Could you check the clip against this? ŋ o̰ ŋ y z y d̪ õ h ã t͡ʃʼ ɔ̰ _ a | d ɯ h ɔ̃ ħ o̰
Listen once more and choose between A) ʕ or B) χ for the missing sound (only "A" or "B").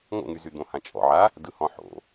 A